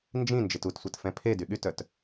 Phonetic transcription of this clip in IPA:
n d͡ʒ ĩ n d͡ʒ e t u t sʷ i t f ɛ̃ pʰ e d y ɠ y t œ t

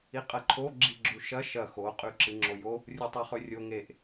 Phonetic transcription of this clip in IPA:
i qʼ ɐ ǃʰ o ɡ͡ǁ i ɡ͡ǁ u ʃ ɐ ʃ ɐ x o qʼ ʉ ǁ ɨ ŋ͡ǁ o j o | rʲ u tˤ o χ ɵ rʲ o ŋ e ʔ

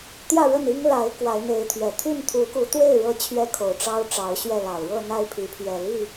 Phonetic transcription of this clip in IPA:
t̪ j ä˥˨ ɻ ə˥˨ n i˦ ŋ l a˨˦ ɪ̯ k w a˨˦ ɪ̯ n̪ e˨˦ ɪ̯ t̪ʰ ɥ ɛ˨˩ t̪ʰ y˥˨ n t̪ʰ u˨˦ k u˨˦ t̪ w e˥˨ ɪ̯ ɻ ɤ˦ t͡ɕʰ ɥ ɛ˦ kʰ o˨˩ ʊ̯ ʈ͡ʂ ɑ˦ ʊ̯ ʈ͡ʂ ɑ˨˦ ʊ̯ ɕ ɥ ɛ˥˨ l ɑ˨˩ ʊ̯ ɻ ɤ˥˨ n̪ a˥˨ ɪ̯ pʰ i˨˦ pʰ ɥ ɛ˨˩ l i˥˨

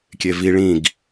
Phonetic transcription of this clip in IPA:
kʲ e v i ɭ ĩ ɡ

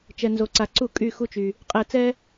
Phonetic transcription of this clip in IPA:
t͡ʃ ɛ˩ n z o˩ ǀ a˩ ǀ u˧˩˧ kʼ y˧˩ x u˧˩ t͡ʃ y˩ | qʼ ɛ˧˩˧ t͡s ɛ˦

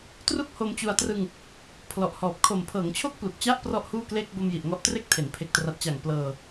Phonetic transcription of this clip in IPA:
t r u˥˩ k̚ h o˧ m t͡ɕ u˧ a̯ t r ɯ˧ ŋ | pʰ l ɔ˨˩ ʔ h ɔː˨˩ p̚ kʰ o˨˩ m pʰ ɤː˩˦ ŋ t͡ɕʰ o˥˩ k̚ p l u˨˩ k̚ t͡ɕ a˥˩ ʔ p r ɔ˥˩ ʔ h uː˥˩ k l e˥˩ k̚ b o˧ m j i˨˩ ʔ ŋ ɔ˦˥ ʔ t r e˥˩ k̚ tʰ e˩˦ n pʰ e˨˩ k̚ t r a˨˩ t̚ t͡ɕ a˨˩ ŋ p l ɤː˧

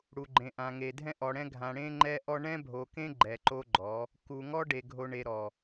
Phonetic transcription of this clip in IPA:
ɽ u˨ ɡ͡ǃ ẽ˨ ʔ ã˨ ŋ e˨ dʱ ɛ̃˦ ʔ ɔ˨ ɽ ɛ̃˦ ɡʱ ã˨ ɽ ẽ˦ ŋ͡ǃ ɛ˦ ʔ ɔ˦ ɳ ɛ̃˦ bʱ o˨ k ẽ˦ ɡ͡ǃ ɛ˨ ǃ o˦ ɡ͡ǃ ɔ˨˦ | k u˨ ŋ ɔ˦ ɖ e˨ ɡʱ o˨ ɳ e˨ ɾ ɔ˨

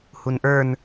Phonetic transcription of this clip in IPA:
h u n ʔ ə˞ n

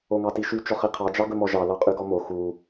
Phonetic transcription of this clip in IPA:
o ŋ ɑ t i ʃ y t͡ʃ ɔ χ i qʰ ɑ d͡ʒ ɑ ɡ ɵ m ɔ ʒ ɑ l ɑ qʼ y ɡ ɔ m o x u

